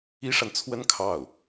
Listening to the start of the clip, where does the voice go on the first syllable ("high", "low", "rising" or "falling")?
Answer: high